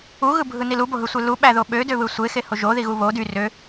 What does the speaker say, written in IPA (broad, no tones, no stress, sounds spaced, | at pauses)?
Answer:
u ɣ ɯ bʱ ɯ n i l u b o ɦ ɯ sʷ e l u ɓ æ ð o ɓ ø d ø β ɯ sʷ e x e h o ʒ o ð i ɣ u β o d y r ø